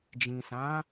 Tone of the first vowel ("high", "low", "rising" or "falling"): low